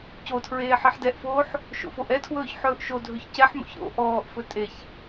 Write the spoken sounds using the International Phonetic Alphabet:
cotʰɹeː ħeħdɛʔfoːħ | ʃo̰foʔɛtʰwɵːç ħɵːʔʃodʱɵç cɛħmo̰ç ɾo̰ ʔɔːʔfɵ tʼeç

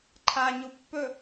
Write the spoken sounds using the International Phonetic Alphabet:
ǃʰa ɲupːɵ

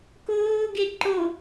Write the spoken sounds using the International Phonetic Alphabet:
koːɡe ǃo

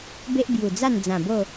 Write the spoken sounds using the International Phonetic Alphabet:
be˦ʔbju˨˩d͡za˥˧nd͡zã˨˩ bo˥˧

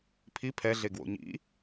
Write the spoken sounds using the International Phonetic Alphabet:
pʰi pʰɛɮeɡwo̰ ɲḭ

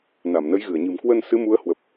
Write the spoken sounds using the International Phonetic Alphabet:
na˧˩mnə˨˦jɣɨ˧˩ə̯ɲɨ̤˨˩m kwə˧n sɨ˨˦ mu˨˦ə̯hwə˨˩p̚

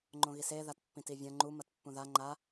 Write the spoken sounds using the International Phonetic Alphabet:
ŋ͡ǃõɣise ðatpːĩtivʲɐ̃ ŋ͡ǃu mɐtpːũða ŋ͡ǃa

